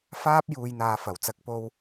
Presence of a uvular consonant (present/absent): absent